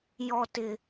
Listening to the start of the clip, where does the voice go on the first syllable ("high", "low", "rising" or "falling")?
high